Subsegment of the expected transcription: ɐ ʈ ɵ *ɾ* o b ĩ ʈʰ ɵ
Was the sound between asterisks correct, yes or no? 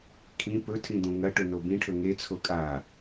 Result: no